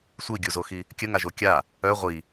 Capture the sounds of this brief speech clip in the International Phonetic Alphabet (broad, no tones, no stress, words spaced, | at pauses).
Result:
sʷiɡʲuzoxi | kʲəŋaʒo kʲa | œ ʁʷi